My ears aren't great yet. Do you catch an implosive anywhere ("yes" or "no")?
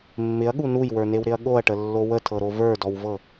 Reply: yes